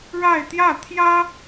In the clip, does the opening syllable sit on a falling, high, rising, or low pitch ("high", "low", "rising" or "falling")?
falling